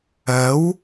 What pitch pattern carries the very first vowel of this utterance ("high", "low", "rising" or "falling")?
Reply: rising